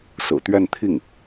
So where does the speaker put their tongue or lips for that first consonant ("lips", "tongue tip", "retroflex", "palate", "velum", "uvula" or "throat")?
tongue tip